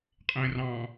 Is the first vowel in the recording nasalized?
yes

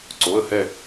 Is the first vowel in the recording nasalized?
no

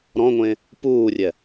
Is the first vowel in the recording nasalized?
yes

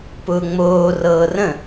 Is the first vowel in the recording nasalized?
no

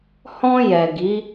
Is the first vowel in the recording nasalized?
yes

